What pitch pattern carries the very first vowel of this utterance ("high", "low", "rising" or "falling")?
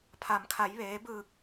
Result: low